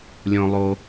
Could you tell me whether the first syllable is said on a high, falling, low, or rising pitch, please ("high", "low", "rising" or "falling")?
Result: low